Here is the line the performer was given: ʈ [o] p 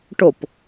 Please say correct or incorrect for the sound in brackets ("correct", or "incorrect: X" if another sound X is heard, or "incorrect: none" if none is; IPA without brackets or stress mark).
correct